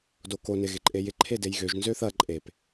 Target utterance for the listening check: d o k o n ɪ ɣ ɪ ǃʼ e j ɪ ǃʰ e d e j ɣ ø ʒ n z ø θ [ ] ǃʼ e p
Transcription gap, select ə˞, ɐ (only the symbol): ɐ